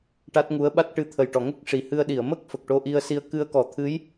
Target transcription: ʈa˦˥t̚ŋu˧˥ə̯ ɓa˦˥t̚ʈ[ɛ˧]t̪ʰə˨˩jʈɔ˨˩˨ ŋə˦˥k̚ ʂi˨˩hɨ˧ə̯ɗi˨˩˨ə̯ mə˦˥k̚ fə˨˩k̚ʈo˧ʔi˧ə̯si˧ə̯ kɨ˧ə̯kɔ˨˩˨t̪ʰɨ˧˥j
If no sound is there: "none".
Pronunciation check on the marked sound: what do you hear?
ɨ˧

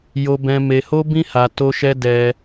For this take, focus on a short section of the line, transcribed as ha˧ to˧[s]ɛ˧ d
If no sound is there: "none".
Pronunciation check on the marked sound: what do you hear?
ʃ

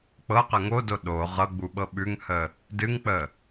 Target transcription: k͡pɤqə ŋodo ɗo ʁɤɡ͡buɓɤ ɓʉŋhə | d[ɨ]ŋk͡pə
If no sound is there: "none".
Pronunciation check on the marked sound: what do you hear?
ɨ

